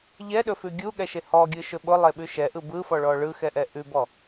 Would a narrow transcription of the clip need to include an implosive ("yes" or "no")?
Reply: yes